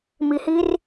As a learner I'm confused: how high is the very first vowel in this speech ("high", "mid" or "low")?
high